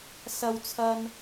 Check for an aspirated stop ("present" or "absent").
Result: present